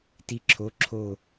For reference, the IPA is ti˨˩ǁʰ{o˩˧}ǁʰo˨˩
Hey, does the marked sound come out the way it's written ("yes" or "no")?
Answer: yes